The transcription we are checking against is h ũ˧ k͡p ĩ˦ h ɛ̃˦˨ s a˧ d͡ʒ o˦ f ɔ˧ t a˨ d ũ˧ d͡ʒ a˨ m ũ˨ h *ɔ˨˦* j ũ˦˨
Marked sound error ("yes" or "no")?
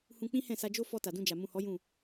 no